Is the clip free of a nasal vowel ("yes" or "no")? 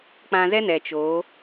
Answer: no